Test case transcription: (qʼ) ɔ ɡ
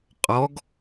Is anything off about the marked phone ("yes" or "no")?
no